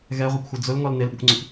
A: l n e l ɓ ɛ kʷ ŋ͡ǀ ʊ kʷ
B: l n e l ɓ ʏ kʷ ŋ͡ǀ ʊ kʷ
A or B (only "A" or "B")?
B